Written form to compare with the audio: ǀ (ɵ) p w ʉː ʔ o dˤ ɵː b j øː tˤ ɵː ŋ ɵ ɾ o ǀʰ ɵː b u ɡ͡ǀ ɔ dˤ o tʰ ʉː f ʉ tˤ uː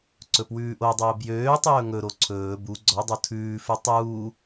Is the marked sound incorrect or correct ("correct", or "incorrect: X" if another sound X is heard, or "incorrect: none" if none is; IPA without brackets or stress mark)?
correct